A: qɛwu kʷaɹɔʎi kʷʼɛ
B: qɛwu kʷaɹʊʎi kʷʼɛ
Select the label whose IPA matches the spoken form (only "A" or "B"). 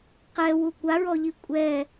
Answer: A